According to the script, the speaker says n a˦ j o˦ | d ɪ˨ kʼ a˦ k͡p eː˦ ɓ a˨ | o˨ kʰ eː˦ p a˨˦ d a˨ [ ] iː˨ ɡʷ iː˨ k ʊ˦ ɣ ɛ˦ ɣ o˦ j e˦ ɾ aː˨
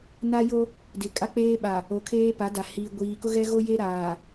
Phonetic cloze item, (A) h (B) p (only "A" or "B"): A